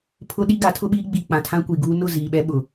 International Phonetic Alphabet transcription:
pʰʊ˦ɗi˦ ɡa˨˦tʰʊ˦ɓiː˦ ɡ͡bi˨ k͡pã˨tʰã˦kʷi˨ɡuː˦ nʊ˦˨ ziː˨ɓɛ˦ ɓʊ˨

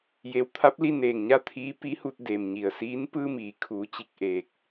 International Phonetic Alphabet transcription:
je˩˧wt̪ʰa˧˥p̚li˥˨ neː˧˩ŋɲa˥˨ t̪ʰiː˧˥ pi˧˥hu˧t̚ deː˩mɲi˩ə̯siː˧˥n pɯː˧miː˩˧kʰuː˩˧ t͡ɕi˧˩k̚ʔeː˧˩k̚

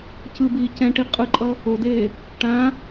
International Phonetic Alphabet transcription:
cɯbiː cɛ̃ʈi qʼɯǃʼʌ | odeː | ʈã

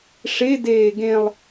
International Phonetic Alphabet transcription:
ʂedeː ɡẽlˠ

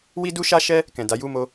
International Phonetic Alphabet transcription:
wi˦du˦ʃa˦ʃɛ˦ | kɛ̃˨da˨˦ ju˦˨mo˧

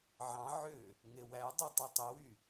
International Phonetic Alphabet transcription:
ʕɑ̃ ʕø | ŋewædˤy tˤotˤiwy

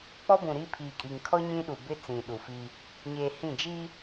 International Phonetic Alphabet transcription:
k͡pɔ˦bũ˨ ɾi˦ pʰiː˨kʼi˨ŋkʰɔ˦ ɲĩ˦ ɗu˨bɪ˦ t͡sĩ˨ ɗu˨fi˦ | ɲeː˨ hĩ˦˨d͡ʒi˦

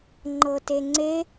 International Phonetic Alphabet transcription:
ŋ͡ǃɤteŋ͡ǀe

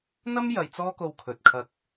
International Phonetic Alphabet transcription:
n̪ɐ˥mjɐ˨j t͡sɔː˥ko˧wkʰɵ˨t̚kʰɐ˧k̚

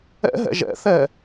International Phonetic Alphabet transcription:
ɛ̰ɦɛ̰ ʒɛ̰θɛ

